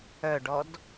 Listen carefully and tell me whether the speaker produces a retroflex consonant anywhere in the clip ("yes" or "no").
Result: yes